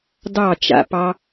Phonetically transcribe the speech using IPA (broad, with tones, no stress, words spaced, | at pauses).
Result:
dɑ˦˨t͡ʃa̰˧pɑ˧